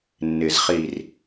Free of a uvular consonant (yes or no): no